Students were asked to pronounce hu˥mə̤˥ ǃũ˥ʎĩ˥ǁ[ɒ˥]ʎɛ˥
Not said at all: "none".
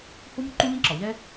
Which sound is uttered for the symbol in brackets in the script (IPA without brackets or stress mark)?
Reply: ɒ˩